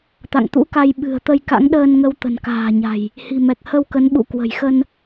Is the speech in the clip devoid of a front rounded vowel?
yes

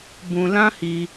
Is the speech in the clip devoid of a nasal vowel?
no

